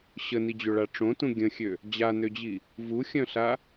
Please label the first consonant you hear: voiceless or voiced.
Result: voiceless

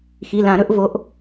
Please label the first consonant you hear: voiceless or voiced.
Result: voiceless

